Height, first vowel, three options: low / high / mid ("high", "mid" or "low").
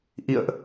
high